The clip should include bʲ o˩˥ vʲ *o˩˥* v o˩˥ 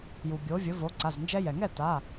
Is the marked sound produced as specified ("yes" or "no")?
no